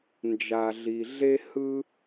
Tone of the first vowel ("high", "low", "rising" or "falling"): low